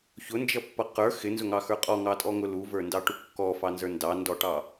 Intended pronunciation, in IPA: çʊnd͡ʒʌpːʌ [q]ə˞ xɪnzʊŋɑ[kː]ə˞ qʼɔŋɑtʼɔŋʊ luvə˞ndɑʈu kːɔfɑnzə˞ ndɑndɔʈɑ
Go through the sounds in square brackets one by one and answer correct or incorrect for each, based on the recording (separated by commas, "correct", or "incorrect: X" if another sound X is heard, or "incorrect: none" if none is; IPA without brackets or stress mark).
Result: correct, incorrect: x